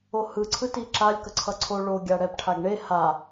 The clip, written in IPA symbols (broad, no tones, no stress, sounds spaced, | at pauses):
o h ɯ ǀʰ ɯ t i ǁ a lʲ k ʌ ǀʰ ʌ ǀʰ o ɭ o ɡʲ a ɽ ɛ p ʈʰ a ɡ ɳ e h a